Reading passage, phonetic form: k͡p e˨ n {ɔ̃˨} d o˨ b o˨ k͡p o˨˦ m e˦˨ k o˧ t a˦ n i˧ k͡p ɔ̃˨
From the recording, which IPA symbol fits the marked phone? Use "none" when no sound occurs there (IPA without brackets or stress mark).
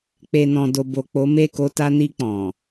ɔ̃˨